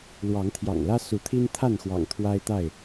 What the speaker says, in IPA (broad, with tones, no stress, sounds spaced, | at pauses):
l w ɑ˨˦ ŋ t̪ʰ j ɑ̰˨˩ ŋ l ä˦ s u˨˦ t̪ʰ i˦ n t̪ʰ a˥˨ n x w ɑ̰˨˩ ŋ t̪ʰ w a˦ ɪ̯ t̪ a˥˨ ɪ̯